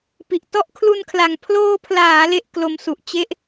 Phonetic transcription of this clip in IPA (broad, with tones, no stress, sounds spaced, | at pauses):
p i˨˩ ʔ t ɔ˦˥ ʔ kʰ l u˧ n kʰ l a˨˩ ŋ pʰ l oː˧ pʰ l aː˩˦ l e˥˩ ʔ k l o˧ m s u˨˩ ʔ t͡ɕ e˥˩ ʔ